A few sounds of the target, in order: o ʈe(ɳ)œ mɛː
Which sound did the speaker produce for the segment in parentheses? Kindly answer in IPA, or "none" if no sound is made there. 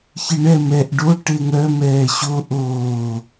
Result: ŋ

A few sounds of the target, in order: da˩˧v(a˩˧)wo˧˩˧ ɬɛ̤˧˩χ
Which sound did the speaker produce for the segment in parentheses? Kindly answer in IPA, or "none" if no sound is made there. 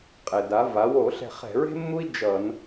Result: a˩˧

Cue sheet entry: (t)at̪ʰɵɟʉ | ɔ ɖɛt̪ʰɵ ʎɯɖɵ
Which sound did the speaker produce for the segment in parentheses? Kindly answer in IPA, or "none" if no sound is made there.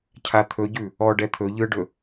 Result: cʰ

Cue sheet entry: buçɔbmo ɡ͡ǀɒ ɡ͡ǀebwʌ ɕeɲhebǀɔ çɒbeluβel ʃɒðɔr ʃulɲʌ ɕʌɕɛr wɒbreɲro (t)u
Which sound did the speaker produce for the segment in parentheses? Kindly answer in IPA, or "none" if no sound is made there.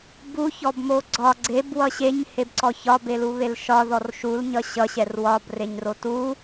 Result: t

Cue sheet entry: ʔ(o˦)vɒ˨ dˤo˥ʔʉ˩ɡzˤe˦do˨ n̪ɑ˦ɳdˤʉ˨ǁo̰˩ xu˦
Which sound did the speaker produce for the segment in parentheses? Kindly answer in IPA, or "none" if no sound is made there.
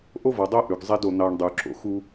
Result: o˥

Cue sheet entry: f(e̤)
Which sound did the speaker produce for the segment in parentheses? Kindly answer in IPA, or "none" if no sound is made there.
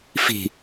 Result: i̤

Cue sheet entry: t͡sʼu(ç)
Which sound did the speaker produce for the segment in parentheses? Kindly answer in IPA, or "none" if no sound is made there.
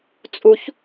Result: ç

